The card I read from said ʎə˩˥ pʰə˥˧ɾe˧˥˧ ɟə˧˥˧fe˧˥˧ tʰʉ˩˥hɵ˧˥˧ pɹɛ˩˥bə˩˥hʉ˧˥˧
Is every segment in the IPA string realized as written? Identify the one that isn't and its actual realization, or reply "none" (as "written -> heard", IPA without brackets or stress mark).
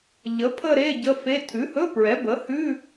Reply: none